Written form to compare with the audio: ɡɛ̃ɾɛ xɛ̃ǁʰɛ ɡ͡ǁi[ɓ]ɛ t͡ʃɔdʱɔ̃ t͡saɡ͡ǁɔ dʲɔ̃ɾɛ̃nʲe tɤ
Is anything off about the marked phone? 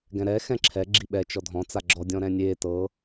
no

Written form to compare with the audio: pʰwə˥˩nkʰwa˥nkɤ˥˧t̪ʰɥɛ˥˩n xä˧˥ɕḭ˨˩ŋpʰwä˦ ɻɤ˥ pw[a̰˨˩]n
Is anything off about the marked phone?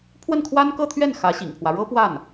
yes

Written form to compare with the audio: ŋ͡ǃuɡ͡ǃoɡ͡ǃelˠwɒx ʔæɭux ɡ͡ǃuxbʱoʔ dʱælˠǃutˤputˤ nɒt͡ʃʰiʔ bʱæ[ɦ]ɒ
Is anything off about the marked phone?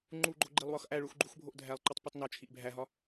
no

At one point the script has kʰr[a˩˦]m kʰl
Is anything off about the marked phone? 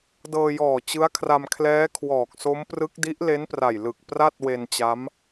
yes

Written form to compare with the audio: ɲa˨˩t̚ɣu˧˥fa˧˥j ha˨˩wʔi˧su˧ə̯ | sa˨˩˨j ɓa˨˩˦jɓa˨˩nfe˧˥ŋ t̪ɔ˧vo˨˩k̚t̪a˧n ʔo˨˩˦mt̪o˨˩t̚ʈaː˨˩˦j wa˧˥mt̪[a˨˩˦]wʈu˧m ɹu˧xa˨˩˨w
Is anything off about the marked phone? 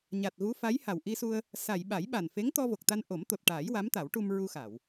no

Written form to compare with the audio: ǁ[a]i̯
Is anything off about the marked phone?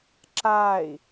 yes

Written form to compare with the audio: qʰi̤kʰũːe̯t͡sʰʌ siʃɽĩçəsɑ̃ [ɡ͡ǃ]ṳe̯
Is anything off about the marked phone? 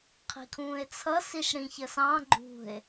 no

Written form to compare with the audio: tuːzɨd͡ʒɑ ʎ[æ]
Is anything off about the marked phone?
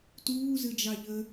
yes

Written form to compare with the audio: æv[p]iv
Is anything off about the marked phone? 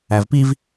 no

